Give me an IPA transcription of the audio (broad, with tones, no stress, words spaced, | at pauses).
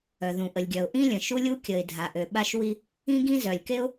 œ˩ðũ˩ʔə˩lʲɡʲœ˩ʊ̯ ʔĩ˥lʲə̃˩ ʃu˥lʲu˥ kʲə˩ɪ̯ dʱa˩ʔø˩ɓa˥ʃwi˥ | ĩ˥ɡĩ˥ zœ˩lʲke˥ʊ̯